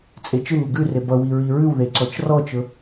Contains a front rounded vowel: yes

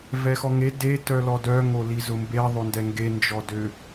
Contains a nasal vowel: no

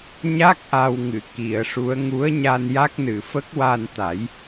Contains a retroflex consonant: yes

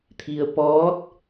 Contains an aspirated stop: yes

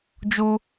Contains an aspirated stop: no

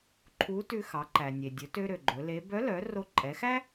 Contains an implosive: no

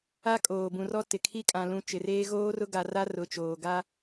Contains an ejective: yes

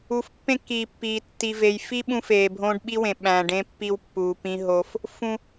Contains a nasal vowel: yes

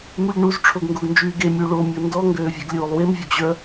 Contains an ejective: no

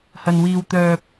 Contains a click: no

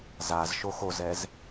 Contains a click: no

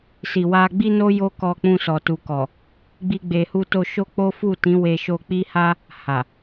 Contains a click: no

